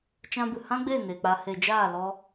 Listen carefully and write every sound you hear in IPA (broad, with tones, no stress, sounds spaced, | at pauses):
t͡ʃ ã˧ b ɨ˨ h ã˦ ɡ͡b eː˦˨ n eː˨ k͡p aː˧ h e˨ d͡ʒ aː˦˨ l ɔ˧